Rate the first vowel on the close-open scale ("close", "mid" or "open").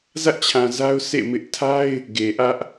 open